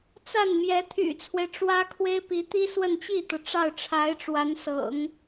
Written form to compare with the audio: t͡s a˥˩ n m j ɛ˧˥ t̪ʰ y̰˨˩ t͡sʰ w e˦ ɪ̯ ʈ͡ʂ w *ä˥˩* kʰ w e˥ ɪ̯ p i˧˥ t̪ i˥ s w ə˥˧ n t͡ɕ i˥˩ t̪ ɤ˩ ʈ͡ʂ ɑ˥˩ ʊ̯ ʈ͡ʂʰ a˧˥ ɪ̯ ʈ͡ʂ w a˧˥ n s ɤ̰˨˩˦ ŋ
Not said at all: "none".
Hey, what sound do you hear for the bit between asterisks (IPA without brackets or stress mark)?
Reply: ä˥